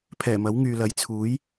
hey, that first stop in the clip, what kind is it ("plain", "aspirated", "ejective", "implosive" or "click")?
aspirated